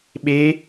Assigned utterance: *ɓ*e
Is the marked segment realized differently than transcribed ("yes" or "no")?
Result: no